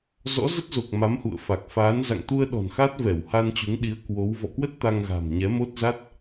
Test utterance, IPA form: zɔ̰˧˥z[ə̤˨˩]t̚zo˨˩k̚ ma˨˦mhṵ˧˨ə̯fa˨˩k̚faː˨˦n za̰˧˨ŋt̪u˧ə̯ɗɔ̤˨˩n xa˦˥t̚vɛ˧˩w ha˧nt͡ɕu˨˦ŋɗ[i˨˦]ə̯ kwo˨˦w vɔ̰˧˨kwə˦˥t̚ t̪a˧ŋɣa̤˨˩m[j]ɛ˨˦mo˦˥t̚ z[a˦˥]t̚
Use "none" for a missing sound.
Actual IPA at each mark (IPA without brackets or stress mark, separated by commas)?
ə˦˥, i˨˦, ɲ, a˦˥